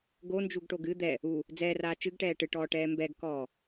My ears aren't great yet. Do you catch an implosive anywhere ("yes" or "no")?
no